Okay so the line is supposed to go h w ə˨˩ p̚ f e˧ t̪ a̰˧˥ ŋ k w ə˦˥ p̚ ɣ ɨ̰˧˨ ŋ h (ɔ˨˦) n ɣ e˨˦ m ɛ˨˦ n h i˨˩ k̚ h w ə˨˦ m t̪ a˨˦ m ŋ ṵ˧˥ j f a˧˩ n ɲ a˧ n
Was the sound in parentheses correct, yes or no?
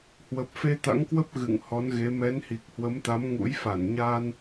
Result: yes